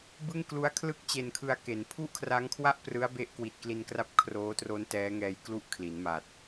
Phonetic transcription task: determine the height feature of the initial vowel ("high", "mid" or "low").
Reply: high